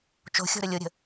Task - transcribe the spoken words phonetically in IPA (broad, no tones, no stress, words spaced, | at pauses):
t͡ʃo̤xʲo̤ɾə lʲoɾʲə̤